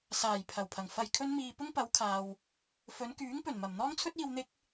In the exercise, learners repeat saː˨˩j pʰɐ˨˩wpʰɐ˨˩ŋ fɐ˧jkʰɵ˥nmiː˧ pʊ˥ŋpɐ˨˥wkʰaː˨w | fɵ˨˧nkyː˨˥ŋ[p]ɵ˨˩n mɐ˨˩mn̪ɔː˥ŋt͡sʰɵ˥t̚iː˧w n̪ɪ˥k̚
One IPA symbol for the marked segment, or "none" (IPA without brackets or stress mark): p